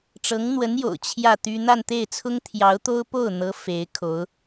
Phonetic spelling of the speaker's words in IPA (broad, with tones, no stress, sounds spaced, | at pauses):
ʈ͡ʂ ɤ˧˥ ŋ n̪ w ə˧˥ n j o̰˨˩ ʊ̯ t͡ɕʰ j ä˥˩ t̪ y˥ n̪ a˥˧ n t̪ e˥˩ ɪ̯ t͡sʰ ʊ˥ ŋ t̪ʰ j ɑ˧˥ ʊ̯ t̪ o˥ ʊ̯ p o˥˩ ʊ̯ n̪ ɤ˧˥ f e˧˥ ɪ̯ kʰ o˧˥ ʊ̯